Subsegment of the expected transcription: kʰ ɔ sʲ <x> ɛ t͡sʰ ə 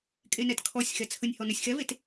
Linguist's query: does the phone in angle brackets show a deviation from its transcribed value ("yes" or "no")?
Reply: no